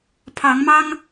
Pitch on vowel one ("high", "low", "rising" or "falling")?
rising